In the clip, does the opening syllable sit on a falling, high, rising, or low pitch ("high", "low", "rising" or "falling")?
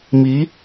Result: rising